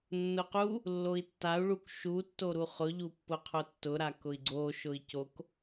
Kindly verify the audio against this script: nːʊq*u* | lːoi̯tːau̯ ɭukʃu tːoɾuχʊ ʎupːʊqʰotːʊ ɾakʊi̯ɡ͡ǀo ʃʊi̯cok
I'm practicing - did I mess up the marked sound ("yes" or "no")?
no